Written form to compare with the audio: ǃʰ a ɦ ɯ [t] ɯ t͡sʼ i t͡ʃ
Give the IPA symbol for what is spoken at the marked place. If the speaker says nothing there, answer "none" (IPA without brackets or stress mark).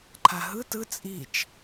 t